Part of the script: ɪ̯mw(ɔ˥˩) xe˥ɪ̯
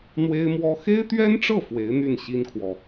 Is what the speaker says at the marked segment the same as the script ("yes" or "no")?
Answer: no